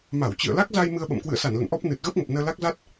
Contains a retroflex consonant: no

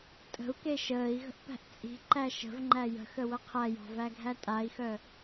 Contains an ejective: yes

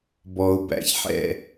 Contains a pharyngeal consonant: yes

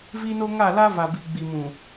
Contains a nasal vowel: yes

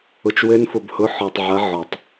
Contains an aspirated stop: no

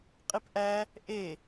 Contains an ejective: yes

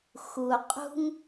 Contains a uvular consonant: yes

